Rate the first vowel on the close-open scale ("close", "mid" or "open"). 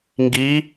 close